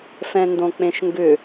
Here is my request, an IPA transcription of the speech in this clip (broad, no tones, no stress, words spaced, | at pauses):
fɛ̃ndõk͡pẽʃŋɡʏ